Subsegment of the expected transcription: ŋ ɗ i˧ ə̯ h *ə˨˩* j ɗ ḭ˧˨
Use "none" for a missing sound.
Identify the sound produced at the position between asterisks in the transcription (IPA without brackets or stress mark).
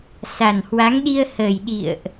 ə˨˩